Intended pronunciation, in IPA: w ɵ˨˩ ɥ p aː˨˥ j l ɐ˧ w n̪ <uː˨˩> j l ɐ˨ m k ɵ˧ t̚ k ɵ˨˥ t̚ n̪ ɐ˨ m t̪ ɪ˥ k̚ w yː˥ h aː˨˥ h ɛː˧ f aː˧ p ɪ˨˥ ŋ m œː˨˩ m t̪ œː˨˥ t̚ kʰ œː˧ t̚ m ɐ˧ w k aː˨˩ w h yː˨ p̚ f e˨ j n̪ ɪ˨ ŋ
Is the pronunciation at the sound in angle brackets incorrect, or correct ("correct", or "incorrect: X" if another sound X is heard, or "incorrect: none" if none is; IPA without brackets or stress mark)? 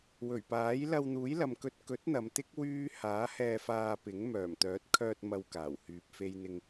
incorrect: uː˨˥